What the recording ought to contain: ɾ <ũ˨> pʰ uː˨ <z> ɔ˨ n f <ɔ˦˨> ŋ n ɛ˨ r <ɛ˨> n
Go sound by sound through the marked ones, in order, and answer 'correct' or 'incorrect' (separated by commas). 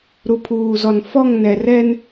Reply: incorrect, correct, correct, incorrect